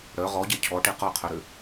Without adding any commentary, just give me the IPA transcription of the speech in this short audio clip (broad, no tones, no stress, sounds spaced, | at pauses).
ɽ œ ʁ ɔ ɟ ɛ cʰ ɔ ʈ e q ɔ qʰ œ ɾ ø